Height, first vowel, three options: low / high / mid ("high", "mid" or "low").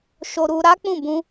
mid